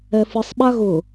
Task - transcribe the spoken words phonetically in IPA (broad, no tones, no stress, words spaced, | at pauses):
ɛfɯsˤ ɓaɣʊ